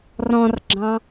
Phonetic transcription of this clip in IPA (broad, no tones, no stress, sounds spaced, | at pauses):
r ɔ̃ r ɡ͡ǁ ɑ̃